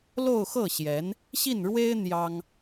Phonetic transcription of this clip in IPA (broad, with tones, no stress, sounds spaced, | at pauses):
l o˥˧ ʊ̯ x ɤ˥˩ ɕ j ɛ˧˥ n | ɕ i˥˩ n ɻ w e˥ ɪ̯ n̪ j ɑ˥ ŋ